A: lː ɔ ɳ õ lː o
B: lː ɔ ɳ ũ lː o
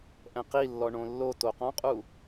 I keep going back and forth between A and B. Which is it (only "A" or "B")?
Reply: A